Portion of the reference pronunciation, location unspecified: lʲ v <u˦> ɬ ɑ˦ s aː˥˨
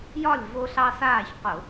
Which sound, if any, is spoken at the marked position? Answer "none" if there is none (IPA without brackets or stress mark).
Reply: o˦